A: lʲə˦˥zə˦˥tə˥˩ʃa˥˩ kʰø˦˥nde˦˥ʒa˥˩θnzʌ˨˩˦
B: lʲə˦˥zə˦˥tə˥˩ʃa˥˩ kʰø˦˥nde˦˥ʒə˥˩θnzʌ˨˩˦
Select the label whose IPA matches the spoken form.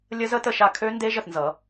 B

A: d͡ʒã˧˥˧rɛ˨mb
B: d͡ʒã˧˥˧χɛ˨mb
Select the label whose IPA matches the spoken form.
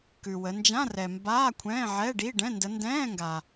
A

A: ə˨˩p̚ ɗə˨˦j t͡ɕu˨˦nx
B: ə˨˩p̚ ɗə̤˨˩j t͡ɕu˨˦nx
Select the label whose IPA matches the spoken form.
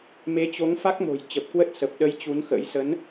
A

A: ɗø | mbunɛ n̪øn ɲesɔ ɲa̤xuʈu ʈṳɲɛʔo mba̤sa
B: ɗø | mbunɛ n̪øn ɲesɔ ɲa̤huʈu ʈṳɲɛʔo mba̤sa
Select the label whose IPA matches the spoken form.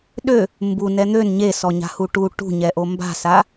B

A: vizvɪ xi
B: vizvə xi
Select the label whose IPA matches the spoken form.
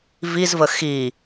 B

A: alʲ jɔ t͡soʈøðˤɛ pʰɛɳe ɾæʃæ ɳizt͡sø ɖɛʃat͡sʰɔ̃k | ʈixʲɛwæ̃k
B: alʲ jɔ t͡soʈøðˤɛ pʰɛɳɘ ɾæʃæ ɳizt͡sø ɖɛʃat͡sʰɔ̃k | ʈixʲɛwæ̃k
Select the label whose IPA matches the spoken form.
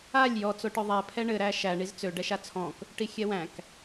B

